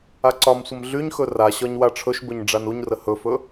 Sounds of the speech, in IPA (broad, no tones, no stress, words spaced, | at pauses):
aǀɒmsʷəm ɮyɲxɵ raɕɒɲ waʈ͡ʂʰɵʃbɵɲ ɖ͡ʐanuɲrə hɵfɵ